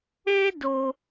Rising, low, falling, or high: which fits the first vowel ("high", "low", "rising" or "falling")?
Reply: high